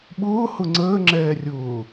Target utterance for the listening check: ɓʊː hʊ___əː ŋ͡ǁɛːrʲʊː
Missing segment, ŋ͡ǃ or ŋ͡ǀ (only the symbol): ŋ͡ǀ